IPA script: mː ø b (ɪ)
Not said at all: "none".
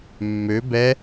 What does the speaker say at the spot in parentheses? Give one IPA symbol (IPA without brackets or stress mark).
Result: ɛ